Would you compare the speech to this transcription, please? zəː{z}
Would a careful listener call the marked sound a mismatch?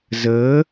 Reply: yes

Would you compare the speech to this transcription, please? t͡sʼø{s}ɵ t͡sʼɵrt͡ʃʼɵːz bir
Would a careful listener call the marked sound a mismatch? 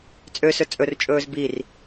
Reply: no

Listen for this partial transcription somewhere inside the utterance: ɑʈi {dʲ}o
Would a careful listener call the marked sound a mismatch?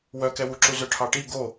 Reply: yes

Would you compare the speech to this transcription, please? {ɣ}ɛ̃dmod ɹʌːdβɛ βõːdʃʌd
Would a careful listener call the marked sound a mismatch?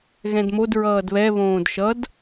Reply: no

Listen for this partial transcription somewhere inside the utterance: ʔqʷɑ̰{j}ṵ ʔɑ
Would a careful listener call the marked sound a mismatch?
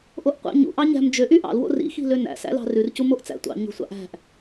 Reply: yes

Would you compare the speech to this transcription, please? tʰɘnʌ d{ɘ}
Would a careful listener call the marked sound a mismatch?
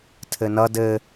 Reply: no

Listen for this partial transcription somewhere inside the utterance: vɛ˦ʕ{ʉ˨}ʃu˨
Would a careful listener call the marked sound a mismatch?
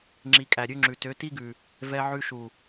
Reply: yes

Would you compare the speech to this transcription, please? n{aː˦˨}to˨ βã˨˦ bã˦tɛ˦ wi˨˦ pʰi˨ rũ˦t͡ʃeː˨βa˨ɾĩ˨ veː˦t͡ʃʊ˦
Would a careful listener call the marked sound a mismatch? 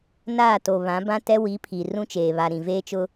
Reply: no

